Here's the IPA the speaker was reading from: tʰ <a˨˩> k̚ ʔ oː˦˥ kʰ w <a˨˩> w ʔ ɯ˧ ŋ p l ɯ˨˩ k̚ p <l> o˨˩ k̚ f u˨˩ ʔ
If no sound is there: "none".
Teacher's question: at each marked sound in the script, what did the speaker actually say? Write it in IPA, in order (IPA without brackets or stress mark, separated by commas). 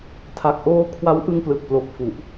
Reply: a˨˩, a˦˥, l